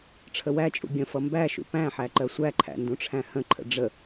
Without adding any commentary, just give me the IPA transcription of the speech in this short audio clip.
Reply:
ʈ͡ʂʰ ə w æ t͡ʃʼ ṵ ɡʲ ə̃ f ʌ m b æ ʃ ṵ p æ̃ ħ æ ǃ ɜ sʷ æ ǃʰ æ̰ n d ũ ʈ͡ʂʰ æ̃ h ə̃ ǃʰ ə̰ ɖ͡ʐ ə

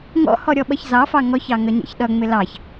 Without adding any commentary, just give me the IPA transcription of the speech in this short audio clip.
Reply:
ŋ ɔ̰ h ɔ ɾʲ ɔ ɓ ʌ ç z ɑ f ɑ ŋ ɔ ç ɑ ŋ ʌ ɲ ɛ̰ ç ɗ ʌ ŋ͡m ɪ l ɑ ç

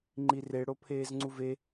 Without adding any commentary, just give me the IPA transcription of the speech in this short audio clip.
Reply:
ŋ͡ǃ i r e ɽ o pʰ eː z ŋ͡ǀ u v e

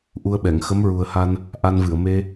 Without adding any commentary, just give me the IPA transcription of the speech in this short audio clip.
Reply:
ʔ u˧ ə̯ ɓ ɛ˨˩˨ ŋ x ə˧˥ m ɹ u˨˩ ə̯ h a˧ n | ʔ a˧ n v ɨ˨˩˨ ə̯ m e˧

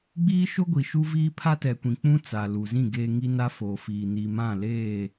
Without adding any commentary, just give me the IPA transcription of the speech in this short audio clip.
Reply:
ɡ͡b iː˦ ʃ o˦ ɡʷ i˨ ʃ u˦ v iː˦ pʰ a˦ t ɛ˨ kʷ ĩ˨ k͡p ũ˦ t͡s a˨ l u˨ z ĩ˦˨ ɡ eː˨ ŋ i˦ n a˦ f oː˨ f iː˨ n i˨ m ã˦˨ l eː˦˨

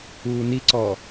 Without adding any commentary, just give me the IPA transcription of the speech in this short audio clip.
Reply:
uː n i ǀ ɔ

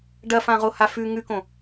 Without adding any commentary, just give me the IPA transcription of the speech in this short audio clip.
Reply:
ɖ ɐ f ã ʁ o h a f ʉ ŋ ʉ k õ

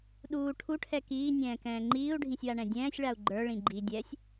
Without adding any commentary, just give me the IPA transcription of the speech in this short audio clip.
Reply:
ɗ uː ʈʰ u ʈʰ ɛ k iː nʲ ɛ̃ː k ɛ̃ː ŋ͡ǃ iː u̯ ɖʱ ĩ sʲ w a ɳ ɛ̃ dʲ ɛ̃ː sʲ ɭ a u̯ ɡ͡ǃ ə˞ ɭ ĩ ɡ͡ǃ i dʲ ɛ sʲ

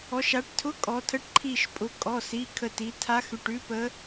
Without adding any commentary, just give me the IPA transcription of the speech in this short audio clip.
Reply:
ɔ˩˧ ʃ a˩˧ ʈ tʰ ʊ˧˥˧ kʼ ɔ˩˧ tʰ ə˧˥˧ ʈ ǃʰ i˧˩ ʃ pʼ ʊ˩˧ kʼ ɔ˩˧˩ s i˩˧˩ kʰ ə˧˩ t i˩˧ tʰ a˧˥ x ʉ˩˧˩ ʈ ʉ˧˥ p ə˧˥

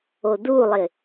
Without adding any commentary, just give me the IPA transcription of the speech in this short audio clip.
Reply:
o d u lˠ ɪ

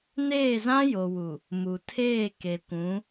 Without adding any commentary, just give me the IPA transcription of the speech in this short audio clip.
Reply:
n eː˦˨ z ã˦ j o˨ w u˨ | m u˨ tʰ eː˦˨ k e˨ kʷ ũ˨˦

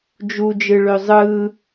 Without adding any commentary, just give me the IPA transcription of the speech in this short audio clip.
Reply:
d͡ʒ u d͡ʒ ɯ ɭ ø zˤ ɯ

